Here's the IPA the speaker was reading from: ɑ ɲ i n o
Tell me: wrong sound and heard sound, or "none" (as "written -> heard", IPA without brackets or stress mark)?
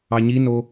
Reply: none